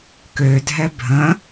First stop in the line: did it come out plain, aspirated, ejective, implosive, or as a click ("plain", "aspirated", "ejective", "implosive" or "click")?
plain